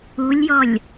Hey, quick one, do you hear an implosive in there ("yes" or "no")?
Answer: no